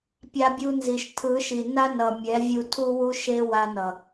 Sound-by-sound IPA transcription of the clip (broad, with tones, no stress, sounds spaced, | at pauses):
pʲ a˧ bʲ u˧ n z i˨ ʃ tʰ ɯ˨˦ ʃ i˨ n a˦ n ʌ˨ mʲ ɛ˨˦ vʲ u˧ tʰ u˦ w u˦ ʃ e˦ w a˧ n ʌ˨